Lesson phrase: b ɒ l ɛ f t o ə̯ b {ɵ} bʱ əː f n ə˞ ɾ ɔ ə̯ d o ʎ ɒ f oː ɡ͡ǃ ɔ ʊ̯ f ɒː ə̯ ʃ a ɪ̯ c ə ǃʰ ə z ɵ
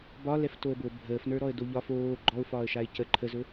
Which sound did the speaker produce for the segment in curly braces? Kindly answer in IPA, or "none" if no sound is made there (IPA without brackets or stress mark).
o